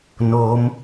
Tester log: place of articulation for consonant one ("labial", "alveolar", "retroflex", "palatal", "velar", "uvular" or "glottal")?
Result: alveolar